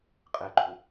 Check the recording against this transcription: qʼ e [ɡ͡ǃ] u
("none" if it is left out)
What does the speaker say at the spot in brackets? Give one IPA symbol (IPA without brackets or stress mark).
ɡ͡ǃ